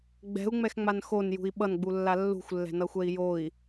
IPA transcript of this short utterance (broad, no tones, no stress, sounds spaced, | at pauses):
ɡ͡b ɛ̤ u̯ ŋ͡m ɛ x ŋ͡m a n x o n j ṳ i̯ ɓ ʌ n ɡ͡b u lː a lː ṳ xʷ lː ɛ̤ n ʌ xʷ ɛ i̯ j o i̯